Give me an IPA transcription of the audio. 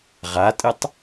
ʁatʼɨtˤ

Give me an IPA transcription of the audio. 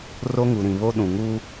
ro˦ŋu˨ɾĩ˨βo˦ ɗũ˨ŋu˦

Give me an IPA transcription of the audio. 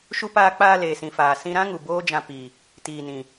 ʃu˧paː˧k͡paː˧ leː˨sĩ˨faː˨ sĩ˧ɾã˦ŋu˨ boː˦d͡ʒã˧ pi˨ | tiː˨nĩ˨

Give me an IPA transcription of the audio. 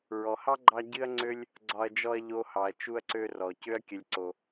ɹɔ˨hɑ˥ ɡ͡ǃɑ˥ ɟɨ˦ɐ̯ŋ͡ǀø˦lʲ | ɡ͡ǀɒ˦ɐ̯d͡ʒɔ˥ɐ̯ʎo˦hɑ˨ɐ̯ t͡ʃu˦ɐ̯ǀø˦rɔ˩ cø˦ɐ̯kʲə˨lʲǀo˩

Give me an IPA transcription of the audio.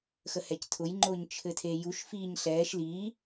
xəhɛctʰʊj ŋ͡ǃʊːɲt͡ʃʰɘtʰejuʃ fiːɲɬɛːʃ liː

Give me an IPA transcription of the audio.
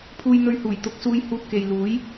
pʰuː˧jn̪ɵ˧ɥhuː˨˩j t̪ʊ˨˥k̚suː˧j huː˧t̚ke˨j luː˨˥j

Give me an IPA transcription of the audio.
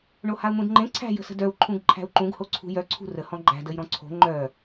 ɳohau̯n̪ũdŋ͡ǃẽ ǀʰæ̤ jə̤sə̤dœu̯ ǃʰũɡǃʰæ̤u̯ǃũɡ hoǀʰṳjœ ǀʰṳrə hɔ̃ɡ͡ǃæ̤ dəjɾɔ̃ǀʰo̤ ŋ͡ǃœ

